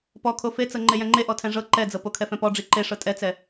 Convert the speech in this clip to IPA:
pɔkʰo fet͡sɤ ŋ͡ǃejɛ̃ŋ͡ǃe ʔɔtʰɛ̃ʐɤ ǃɛd͡zɤ pokʰɛfɛ̃pɔ ɖ͡ʐiǃe ʂɤtʼɛt͡sɛ

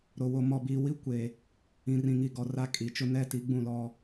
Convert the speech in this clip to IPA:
ɾo˨ wo˨ mɔ˨biː˨wi˦ kʷe˨ | ĩ˨rĩ˨ŋi˨ ɡɔ˨ra˦ kʼi˨t͡ʃʊ˦ nɛ˦ti˨˦ɡ͡bũ˦˨lɔ˦

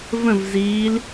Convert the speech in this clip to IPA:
və̃vziːl

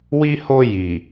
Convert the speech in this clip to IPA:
wi˧ho˧ ji˨

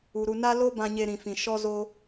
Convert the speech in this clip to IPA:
u˨ɾu˧ na˦lo˦ bã˧ɲe˧ɾĩ˨fĩ˨ ʃɔ˦zo˦

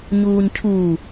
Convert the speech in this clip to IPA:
ɲuːɲcʰuː

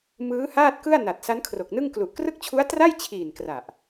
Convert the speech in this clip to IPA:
mɯː˦˥haː˥˩t̚kɯ˥˩a̯ na˨˩t̚sa˦˥n kʰro˨˩k̚nɯ˥˩ŋ klu˨˩ʔkrɯ˥˩k̚t͡ɕʰu˦˥a̯ tra˥˩jt͡ɕʰiː˨˩n kra˨˩ʔ

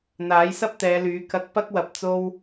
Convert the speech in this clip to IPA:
n̪aː˨˥jsɐ˥p̚t̪ɛː˨˧lyː˨˧ kɐ˨˥k̚ pɐ˥k̚wɐ˨p̚ t͡so˥w

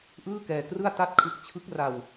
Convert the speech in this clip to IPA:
ʔɯː˥˩kɛː˧krɯ˥˩a̯ ta˥˩t̚kʰɯ˦˥k̚ t͡ɕʰɯ˦˥k̚ra˧w

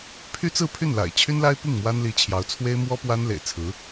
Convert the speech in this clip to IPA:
pʰy˥t͡sɹ̩˥˧pʰy˥˩nla̰˨˩ɪ̯ t͡ɕʰy˥nla˥ɪ̯pi˥˩ŋ mwa˥nli˧˥ t͡ɕʰjɑ˧˥ʊ̯ t͡sʰwe˥ɪ̯mwɔ˥pwa˥n lḛ˨˩ɪ̯t͡sʰɹ̩˧˥

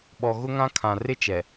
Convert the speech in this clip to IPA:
ɓɔ˨ ɣʊ˦ŋã˦kʰã˨ rɪ˦t͡ʃɛ˨

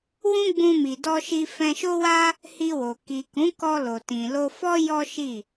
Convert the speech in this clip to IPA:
wũ˦ɡ͡bũ˧mi˨ dɔ˧ʃi˧ fɛ̃˧ʃo˦wa˦ | hi˧wo˨ ki˨kũ˨˦ kɔ˧lo˨tĩ˨ lo˧fɔ˦ jɔ˦ʃi˦˨

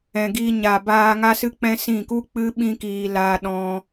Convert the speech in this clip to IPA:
ɛ̃˨ɡi˧ɲa˨ baː˧ ŋa˦sɨ˦k͡pɛ̃˦sĩ˦˨ ku˦k͡pɨ˦ ɓĩ˦kiː˧ la˦ ɗɔ̃˦

